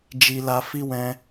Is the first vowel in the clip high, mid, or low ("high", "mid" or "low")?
high